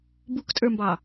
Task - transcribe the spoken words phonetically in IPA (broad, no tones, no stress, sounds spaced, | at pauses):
b u k tʼ ə˞ m b ɑ